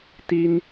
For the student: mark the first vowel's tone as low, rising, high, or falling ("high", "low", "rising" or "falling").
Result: high